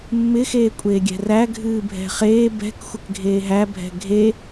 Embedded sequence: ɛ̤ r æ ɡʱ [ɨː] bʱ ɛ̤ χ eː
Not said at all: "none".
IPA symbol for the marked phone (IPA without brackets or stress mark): ɨː